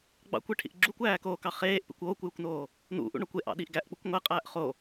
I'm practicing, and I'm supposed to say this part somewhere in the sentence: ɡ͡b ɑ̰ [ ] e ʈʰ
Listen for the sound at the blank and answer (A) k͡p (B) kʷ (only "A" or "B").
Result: B